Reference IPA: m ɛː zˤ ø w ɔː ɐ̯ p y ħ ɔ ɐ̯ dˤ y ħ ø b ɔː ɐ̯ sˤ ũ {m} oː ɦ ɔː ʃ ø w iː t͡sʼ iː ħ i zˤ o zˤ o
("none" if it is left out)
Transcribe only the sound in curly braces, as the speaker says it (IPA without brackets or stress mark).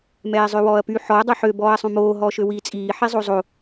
m